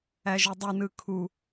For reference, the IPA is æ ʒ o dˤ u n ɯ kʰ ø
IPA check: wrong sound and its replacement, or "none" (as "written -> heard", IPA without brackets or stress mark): ø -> u